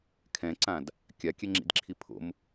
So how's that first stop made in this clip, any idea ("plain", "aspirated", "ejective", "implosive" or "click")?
aspirated